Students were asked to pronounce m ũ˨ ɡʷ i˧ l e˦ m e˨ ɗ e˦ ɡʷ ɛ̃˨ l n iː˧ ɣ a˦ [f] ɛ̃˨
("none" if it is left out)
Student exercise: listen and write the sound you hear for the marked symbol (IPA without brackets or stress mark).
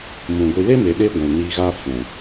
f